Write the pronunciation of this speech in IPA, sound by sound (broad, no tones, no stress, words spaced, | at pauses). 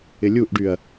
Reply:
ɪlʲuʔɖyɐ̯